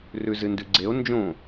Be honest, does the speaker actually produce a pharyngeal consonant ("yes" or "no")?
no